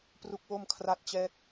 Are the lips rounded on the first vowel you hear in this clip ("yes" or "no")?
yes